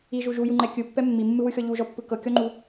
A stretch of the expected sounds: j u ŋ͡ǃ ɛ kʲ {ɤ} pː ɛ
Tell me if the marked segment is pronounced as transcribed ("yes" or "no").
no